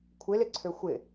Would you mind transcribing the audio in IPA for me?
kʷʰ ɪ l ɪ ǀʰ ø xʷ ɪ

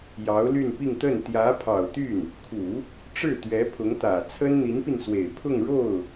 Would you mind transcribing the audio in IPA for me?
j ɑ˧˥ ʊ̯ l y˥˧ n p i˥˧ ŋ t̪ ə˥˩ n t̪ j ä˧˥ pʰ ɑ˨˩ ʊ̯ t̪ y˥˩ n | kʰ u˨˩˦ | ʈ͡ʂ ɻ̩˥˩ t̪ ɥ ɛ˧˥ pʰ ʊ˧˥ ŋ t̪ ä˨˩ t͡sʰ ə˥ n n̪ i˧˥ n p i˧ n s w e˨˩ ɪ̯ pʰ ʊ˥˧ ŋ ɻ o˥˩ ʊ̯

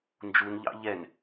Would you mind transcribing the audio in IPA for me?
n d͡ʒ u n ʎ ɑ̰ ʎ ɛ n

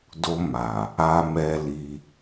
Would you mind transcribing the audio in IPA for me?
d o˧ m a˨ | a˧ m ɛ˧ l i˧

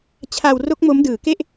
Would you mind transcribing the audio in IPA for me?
t͡ɕʰ a˧ w r o˦˥ k̚ m o˦˥ m d ɯː˨˩ k e˥˩ ʔ

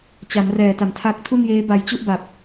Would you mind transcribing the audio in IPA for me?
t͡ɕ a˩˦ m r ɛː˨˩ t a˨˩ m tʰ a˦˥ k̚ tʰ u˥˩ n j eː˦˥ b a˧ j t͡ɕ u˥˩ ʔ b a˨˩ p̚

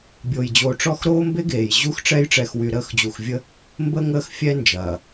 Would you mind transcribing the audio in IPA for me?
bʲ oː˨ j d͡ʑ oː˨ ʈ͡ʂ ɔ˦˨ x ɾ oː˦ m b e˦ ɡ eː˨ j ʑ u˦ x ʈ͡ʂ ɛ˦ j ʈ͡ʂ ɛ˨ x w y˨ ɾ əː˦˨ x d͡ʑ u˨ x vʲ ə˦ | m b ə˦ ŋ əː˦˨ x fʲ ɛ˦ n d͡ʒ ɐː˨

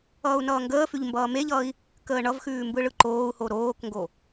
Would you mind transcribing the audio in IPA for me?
ʌː u̯ n ʌː ŋ ɡ əː f ʉ ʎ m b ʌː m e ʎ ʌː i̯ | k əː ɳ ʌ v x ʉː m b ɯ ɭ ɯ ǃ oː u̯ h o ɾ oː k ŋ ɡ o

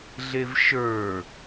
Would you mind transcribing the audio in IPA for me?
ɮ e v ʃ ə˞

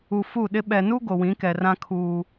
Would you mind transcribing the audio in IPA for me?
u˨ f u˦˨ ɗ ɪ˦ ɓ ɛ˨ n u˦ ɡ o˨ w ĩ˨˦ k ɛ˨ r ã˦ kʰ uː˦

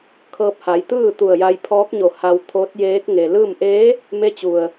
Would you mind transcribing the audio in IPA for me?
kʰ ɤː˧ p̚ h a˩˧ j t̪ ɯː˥˨ t̪ u˧˩ ə̯ j a˧ j pʰ ɔː˧˥ k̚ ɲ o˧˩ h a˧ w t̪ʰ o˧˥ t̚ j eː˧˥ k̚ ŋ e˩ l ɯː˥˨ m ʔ eː˧˥ | m e˧˥ t͡ɕ u˩ ə̯

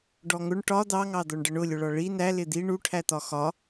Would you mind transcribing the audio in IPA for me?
ɖ ɔ ŋ ʊ ɳ ʈ ɒ d̪ ɑ ŋ ɑ d̪ ɔ ɳ ɖ ə ɳ ʊ lʲ ʊ ɭ ɒ ɭ i n æ l ɪ d̪ i ɳ u ʈʰ æ t̪ ɒ x ɒ

